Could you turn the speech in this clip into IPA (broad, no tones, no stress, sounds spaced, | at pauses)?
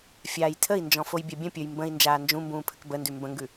fʲ aː j tʰ ə i̯ n d͡ʒ ɔ̃ f o j bʲ a bʲ ə̃ pʲ ə˞ j m b ə̃ i̯ n d͡ʒ aː n d͡ʒ ũ m b ũː pʰ ə k b ə n d ʉ m b ə̃ ŋ ɡ ʉ